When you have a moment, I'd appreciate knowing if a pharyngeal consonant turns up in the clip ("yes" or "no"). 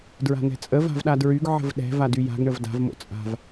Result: yes